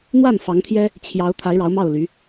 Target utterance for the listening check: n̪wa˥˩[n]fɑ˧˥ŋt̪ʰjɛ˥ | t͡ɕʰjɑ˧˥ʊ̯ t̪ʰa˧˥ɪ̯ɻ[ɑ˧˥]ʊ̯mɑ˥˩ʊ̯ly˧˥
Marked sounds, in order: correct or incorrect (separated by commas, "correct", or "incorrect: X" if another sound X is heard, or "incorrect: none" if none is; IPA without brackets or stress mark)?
correct, correct